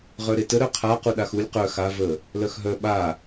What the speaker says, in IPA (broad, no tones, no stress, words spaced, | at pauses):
ʁœɾetə ɾœqʰa quɗaxulʲ qœ xa və | lœxɦœ ɓa